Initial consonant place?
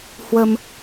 glottal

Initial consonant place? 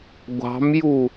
velar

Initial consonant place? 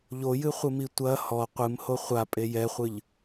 palatal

